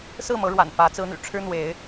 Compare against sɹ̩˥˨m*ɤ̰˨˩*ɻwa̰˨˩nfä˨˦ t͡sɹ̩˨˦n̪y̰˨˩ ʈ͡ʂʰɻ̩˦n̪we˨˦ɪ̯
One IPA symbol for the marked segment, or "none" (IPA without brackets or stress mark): ɤ˨˦